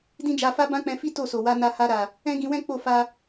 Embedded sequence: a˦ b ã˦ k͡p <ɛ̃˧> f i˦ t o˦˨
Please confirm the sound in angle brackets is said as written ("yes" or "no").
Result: yes